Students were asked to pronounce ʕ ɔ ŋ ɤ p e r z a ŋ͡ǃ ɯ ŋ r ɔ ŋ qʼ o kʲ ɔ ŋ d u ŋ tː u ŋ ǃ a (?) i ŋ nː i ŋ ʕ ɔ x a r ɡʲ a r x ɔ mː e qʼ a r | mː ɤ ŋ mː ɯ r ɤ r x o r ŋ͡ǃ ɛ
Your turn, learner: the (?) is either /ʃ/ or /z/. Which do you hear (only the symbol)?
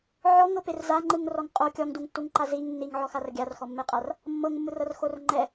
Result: z